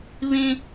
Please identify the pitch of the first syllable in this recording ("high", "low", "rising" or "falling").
high